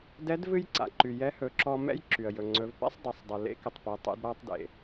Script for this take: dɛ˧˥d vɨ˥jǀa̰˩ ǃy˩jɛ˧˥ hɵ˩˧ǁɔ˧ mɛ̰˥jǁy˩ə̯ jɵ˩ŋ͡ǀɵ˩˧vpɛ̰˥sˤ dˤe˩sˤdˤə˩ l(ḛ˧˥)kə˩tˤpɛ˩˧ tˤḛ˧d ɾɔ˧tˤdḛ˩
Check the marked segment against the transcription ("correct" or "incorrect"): correct